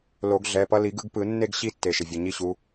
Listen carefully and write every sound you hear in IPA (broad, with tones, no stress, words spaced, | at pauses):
lo˨˩˦ɡɮɛ˩˧˩pʌ˥˧ li˨˩˦ɡɯ˨˦ɡpɯ˨˩˦nːe˥˧ɡ ɕi˥˧tːe˩ ʃe˩vʲʌ˩˧˩ɲi˥˧ɕu˨˦